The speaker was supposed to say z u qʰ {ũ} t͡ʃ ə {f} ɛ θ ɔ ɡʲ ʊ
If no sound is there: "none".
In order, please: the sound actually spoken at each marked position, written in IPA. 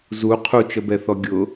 u, b

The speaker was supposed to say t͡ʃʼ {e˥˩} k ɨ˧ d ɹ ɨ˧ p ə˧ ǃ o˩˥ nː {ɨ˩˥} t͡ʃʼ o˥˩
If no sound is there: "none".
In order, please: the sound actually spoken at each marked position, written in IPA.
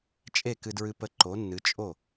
e˥˩, ɨ˩˥

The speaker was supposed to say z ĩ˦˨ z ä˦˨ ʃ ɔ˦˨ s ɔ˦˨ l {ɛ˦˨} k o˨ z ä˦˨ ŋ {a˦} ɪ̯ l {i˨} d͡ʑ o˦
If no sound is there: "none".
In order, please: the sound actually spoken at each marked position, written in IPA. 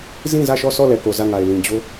ɛ˨, a˨, ĩ˨

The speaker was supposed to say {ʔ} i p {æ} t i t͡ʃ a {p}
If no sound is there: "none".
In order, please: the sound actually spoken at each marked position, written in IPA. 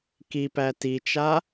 k, æ, none

